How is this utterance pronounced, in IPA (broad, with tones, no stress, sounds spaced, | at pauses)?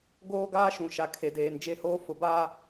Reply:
ɡ oː˦ ɡ aː˦ ʃ ũ˨ ʃ a˨ kʰ e˨ d eː˨ n d͡ʒ e˦ h oː˦ f ʊ˨ b aː˦